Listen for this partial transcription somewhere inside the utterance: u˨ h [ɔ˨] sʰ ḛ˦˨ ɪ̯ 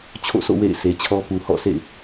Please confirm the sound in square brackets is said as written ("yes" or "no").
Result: no